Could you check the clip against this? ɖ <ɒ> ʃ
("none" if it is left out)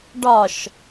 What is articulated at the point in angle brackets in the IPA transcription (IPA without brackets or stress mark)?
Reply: ɒ